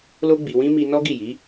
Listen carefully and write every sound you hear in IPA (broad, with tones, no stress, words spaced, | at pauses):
lo˦ɡ͡bi˧wĩ˦ mi˧ nɔ˦ɡi˦˨ji˨˦